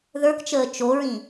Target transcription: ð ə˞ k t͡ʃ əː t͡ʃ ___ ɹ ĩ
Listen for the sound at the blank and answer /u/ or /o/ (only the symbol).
o